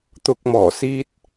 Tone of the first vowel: low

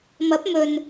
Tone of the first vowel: rising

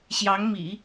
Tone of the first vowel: rising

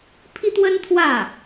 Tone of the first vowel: high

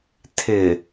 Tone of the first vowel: low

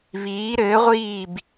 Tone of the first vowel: rising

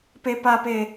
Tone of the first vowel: high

